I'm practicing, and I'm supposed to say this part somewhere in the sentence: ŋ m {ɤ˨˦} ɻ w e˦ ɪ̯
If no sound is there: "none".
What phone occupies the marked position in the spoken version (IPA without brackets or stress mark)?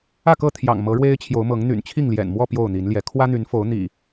ɤ˨˦